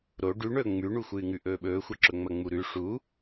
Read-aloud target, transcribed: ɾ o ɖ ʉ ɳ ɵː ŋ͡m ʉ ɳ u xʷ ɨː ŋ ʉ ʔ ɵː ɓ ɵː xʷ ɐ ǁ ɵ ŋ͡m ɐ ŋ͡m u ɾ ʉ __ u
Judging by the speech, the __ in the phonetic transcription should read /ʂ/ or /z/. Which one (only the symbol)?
ʂ